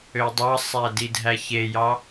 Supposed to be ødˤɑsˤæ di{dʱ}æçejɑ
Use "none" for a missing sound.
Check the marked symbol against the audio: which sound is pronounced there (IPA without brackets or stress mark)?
dʱ